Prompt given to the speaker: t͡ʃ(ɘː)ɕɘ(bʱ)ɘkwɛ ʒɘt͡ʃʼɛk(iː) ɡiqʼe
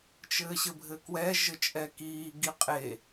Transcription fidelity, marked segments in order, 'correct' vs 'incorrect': correct, correct, correct

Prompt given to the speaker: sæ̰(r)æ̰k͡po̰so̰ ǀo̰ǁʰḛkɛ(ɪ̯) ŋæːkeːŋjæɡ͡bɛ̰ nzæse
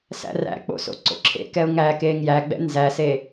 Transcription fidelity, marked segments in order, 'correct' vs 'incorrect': correct, incorrect: ʊ̯

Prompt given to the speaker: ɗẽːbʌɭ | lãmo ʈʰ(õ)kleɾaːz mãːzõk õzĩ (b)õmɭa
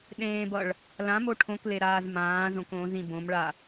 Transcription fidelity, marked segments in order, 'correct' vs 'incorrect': correct, correct

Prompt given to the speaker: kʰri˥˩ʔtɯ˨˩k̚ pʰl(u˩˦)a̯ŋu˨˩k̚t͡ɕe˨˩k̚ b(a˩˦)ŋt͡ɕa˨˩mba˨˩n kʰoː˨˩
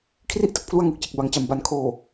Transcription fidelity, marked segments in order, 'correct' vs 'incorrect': incorrect: u˥˩, correct

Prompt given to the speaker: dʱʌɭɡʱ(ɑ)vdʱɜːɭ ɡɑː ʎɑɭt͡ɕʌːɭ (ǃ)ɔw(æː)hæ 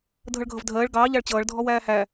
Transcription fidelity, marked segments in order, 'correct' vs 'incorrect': incorrect: ʌ, incorrect: dʱ, correct

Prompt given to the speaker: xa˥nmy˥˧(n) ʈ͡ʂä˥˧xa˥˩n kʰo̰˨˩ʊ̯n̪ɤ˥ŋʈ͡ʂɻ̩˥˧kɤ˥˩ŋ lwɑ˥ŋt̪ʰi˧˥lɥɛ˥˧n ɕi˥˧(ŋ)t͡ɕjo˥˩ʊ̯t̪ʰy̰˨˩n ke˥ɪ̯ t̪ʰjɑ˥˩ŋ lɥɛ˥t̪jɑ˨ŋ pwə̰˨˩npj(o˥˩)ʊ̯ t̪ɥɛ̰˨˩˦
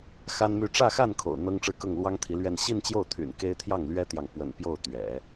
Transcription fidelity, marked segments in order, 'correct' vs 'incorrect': incorrect: none, incorrect: n, correct

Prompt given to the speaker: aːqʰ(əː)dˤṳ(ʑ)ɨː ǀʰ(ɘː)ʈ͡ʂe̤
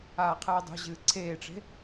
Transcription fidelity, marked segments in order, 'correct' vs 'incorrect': incorrect: ɨː, correct, incorrect: eː

